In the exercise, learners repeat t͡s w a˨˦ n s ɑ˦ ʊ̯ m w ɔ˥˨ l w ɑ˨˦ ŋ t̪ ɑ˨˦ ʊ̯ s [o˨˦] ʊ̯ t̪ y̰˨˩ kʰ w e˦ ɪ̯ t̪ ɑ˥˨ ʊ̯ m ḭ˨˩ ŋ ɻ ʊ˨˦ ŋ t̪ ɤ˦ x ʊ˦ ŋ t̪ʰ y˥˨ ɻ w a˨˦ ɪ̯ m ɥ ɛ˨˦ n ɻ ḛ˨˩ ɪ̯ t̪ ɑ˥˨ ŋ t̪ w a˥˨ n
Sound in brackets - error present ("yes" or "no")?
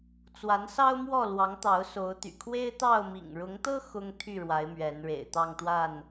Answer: no